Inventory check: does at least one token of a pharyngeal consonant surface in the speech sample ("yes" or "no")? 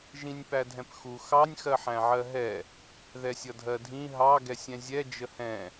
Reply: yes